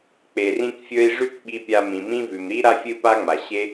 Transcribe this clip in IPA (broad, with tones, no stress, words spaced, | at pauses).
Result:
k͡pe˩rĩ˥kfʲɵ˥i̯ ʐʉ˥kɓi˧pʲa˧ mĩ˩mĩ˥vʉ˩m ɾi˥ ɾa˥fʲɨ˥pa˥ŋ͡ma˩ ɕe˥